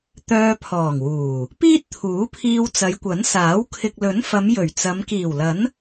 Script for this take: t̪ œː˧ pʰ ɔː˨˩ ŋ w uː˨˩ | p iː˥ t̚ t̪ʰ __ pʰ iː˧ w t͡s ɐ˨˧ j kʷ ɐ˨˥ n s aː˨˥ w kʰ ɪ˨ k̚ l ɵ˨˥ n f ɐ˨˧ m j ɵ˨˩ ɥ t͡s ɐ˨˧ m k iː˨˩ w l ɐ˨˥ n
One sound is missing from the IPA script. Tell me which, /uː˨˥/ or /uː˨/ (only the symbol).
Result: uː˨˥